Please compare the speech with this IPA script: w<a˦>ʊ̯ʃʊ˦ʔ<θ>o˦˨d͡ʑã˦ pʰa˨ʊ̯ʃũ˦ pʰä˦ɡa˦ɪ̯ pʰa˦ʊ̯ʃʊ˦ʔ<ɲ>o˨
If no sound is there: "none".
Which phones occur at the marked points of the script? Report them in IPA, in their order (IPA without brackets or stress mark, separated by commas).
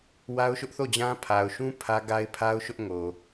a˦, θ, ŋ